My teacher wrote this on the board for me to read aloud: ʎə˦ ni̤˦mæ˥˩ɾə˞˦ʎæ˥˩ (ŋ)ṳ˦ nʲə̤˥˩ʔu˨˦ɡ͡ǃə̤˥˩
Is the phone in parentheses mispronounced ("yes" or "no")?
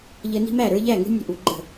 no